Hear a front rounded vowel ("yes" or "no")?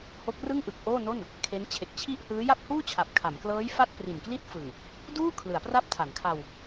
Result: no